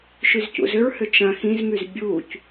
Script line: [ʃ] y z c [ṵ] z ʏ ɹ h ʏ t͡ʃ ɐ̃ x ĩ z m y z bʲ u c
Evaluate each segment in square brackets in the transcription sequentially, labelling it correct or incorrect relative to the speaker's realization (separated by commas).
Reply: correct, correct